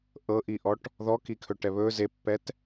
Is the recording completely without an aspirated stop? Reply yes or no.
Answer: no